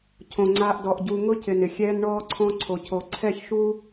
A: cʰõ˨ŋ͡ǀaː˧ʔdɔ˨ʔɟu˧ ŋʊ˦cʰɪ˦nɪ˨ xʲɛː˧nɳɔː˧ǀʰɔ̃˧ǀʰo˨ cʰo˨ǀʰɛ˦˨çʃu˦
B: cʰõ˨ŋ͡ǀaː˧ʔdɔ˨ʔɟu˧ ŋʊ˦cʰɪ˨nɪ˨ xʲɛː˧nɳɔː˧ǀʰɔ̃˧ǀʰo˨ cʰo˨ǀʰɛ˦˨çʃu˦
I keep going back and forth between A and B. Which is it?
B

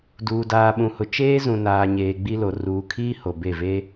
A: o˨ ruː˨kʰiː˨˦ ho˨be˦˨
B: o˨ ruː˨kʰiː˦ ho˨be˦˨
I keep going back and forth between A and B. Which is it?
B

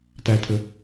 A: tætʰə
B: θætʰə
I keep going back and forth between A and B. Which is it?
A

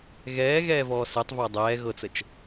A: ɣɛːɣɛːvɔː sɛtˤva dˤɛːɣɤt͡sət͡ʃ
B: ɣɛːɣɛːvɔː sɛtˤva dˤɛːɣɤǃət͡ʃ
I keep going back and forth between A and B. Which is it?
A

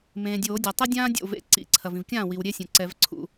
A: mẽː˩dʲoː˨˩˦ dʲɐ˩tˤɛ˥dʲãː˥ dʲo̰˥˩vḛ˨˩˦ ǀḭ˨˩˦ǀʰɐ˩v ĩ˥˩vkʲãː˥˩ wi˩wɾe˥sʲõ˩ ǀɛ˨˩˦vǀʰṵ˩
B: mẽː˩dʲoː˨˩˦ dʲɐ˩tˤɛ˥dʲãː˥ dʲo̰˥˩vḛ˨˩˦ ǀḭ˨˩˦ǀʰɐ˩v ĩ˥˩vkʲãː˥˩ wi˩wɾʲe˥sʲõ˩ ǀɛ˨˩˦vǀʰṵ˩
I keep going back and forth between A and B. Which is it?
B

